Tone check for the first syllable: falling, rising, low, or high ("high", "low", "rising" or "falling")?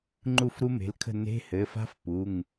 falling